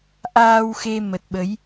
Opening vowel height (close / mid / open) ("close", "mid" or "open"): open